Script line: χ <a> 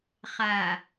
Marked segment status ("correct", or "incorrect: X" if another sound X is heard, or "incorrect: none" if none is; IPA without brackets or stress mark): correct